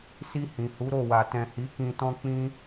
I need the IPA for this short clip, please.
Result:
s i˧ h ĩ˨ h u˨˦ ɾ o˦˨ w a˨ t ɛ̃˨ h i˨˦ k ĩ˧ t ɔ̃˦ k͡p ĩ˦

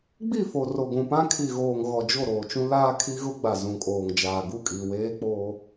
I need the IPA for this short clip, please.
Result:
ɡ͡b i˦˨ f o˨ r o˨ ɡʷ ũ˨ p ã˦ kʰ i˨ ɣ oː˨ ŋ ɣ ɔ˨ d͡ʒ o˦˨ ɾ oː˨ t͡ʃ ũ˦ l aː˦ kʰ i˦ ɣ ʊ˦ ɡ͡b a˨ z ũ˨ kʼ oː˨ ŋ d͡ʒ aː˨ ɡ u˦˨ kʼ i˨ w eː˦ k͡p oː˦

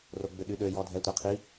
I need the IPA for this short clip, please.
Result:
r o ɡ͡b ʏ ɗ y ɗ ø j ɔ dʱ ɛ tʷ ɛ qʰ i

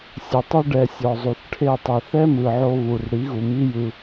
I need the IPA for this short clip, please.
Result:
sʲ e˨ tˤ u˧ ɖ ɛ˨ sʲ ɔ˨ zˤ u˨ θ ʈʰ e˦˨ tˤ i˨ θ ɛ˦ m ɯ˨ ʕ o˧ β u˨ r ɽ i˨˦ ɣ u˨ m i˦ j ɯ˧

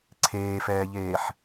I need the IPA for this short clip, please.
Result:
ǀʰ eː f ɛː ʎ eː ħ

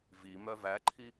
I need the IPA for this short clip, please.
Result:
v i m œ v æ ǃʰ i

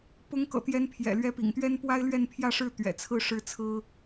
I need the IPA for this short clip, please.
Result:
p ʊ˧˥ ŋ k ɤ̰˨˩ t̪ j ɛ˧˥ n pʰ j ɛ̰˨˩ l ɥ ɛ˧˥ p ḭ˨˩ ŋ t̪ ɥ ɛ˥ n p w a˥ ɪ̯ l ɥ ɛ˥˧ n pʰ j ä˥˧ ʂ ɻ̩˥˩ t̪ ɥ ɛ̰˨˩ t͡sʰ ɹ̩˥˩ ʂ ɻ̩˥ t͡sʰ ɹ̩˥

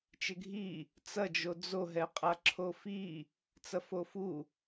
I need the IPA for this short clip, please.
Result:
t͡ʃ ɪ ɡʱ i | t͡s ɐ d͡ʒ o d͡z o ɦ ɛ qʼ a ǁʰ o f i | t͡s ɐ f o f u

